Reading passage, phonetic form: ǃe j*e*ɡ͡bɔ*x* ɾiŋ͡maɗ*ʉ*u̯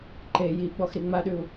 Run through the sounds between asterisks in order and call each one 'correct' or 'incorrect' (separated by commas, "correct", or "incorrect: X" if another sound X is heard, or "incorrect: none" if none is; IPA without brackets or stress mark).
incorrect: i, correct, correct